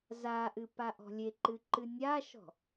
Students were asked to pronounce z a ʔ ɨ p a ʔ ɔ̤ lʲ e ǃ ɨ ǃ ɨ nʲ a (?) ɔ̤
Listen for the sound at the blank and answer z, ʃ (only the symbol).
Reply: ʃ